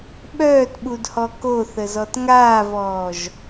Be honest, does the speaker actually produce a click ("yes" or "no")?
no